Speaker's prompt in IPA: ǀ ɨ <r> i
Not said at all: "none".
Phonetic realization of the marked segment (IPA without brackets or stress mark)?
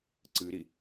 ɾ